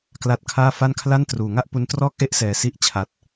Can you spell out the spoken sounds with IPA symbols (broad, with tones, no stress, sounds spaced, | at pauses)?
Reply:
k l a˦˥ t̚ kʰ aː˥˩ f a˥˩ n kʰ l a˥˩ n t r uː˨˩ ŋ a˥˩ ʔ p u˧ n t r ɔː˥˩ k̚ ʔ e˥˩ ʔ s ɛː˨˩ s i˥˩ ʔ t͡ɕʰ a˨˩ t̚